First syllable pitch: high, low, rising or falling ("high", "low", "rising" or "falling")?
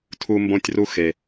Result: high